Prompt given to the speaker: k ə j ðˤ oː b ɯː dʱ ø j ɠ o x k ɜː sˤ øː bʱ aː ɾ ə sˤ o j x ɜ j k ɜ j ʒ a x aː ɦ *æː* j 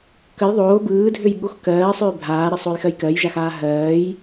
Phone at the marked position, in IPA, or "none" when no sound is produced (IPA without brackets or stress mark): ɜː